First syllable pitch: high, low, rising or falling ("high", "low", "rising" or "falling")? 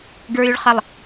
low